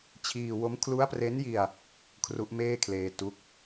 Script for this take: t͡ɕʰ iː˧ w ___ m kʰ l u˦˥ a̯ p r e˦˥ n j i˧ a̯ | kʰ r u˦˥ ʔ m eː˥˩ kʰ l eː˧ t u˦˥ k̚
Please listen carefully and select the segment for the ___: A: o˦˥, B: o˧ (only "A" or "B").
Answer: A